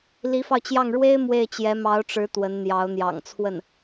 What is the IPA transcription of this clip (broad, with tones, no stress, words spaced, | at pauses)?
li˧˥fɑ˧ʊ̯t͡ɕjɑ˥˩ŋ ɻwe˥ɪ̯ mwe˥˩ɪ̯t͡ɕjɛ˧˥ mɑ˧˥ʊ̯ʈ͡ʂɻ̩˧˥ t̪wə˧˥nn̪jɑ˧˥ʊ̯ n̪jɑ̰˨˩ŋt͡sʰwə˥˩n